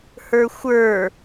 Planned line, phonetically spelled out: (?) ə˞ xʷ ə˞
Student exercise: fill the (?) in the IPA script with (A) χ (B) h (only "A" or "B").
B